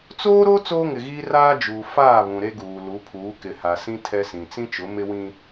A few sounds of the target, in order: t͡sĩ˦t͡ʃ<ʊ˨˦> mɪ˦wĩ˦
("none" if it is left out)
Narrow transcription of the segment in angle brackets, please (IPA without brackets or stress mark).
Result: ʊ˨˦